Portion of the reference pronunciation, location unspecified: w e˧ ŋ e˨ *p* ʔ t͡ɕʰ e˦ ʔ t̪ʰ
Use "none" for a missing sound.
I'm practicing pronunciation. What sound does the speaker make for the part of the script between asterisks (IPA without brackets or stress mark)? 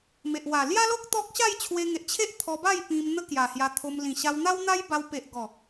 none